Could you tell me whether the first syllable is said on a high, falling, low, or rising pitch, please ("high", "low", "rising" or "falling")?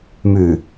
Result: low